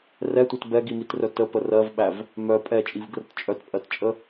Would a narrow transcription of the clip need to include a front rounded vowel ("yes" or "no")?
yes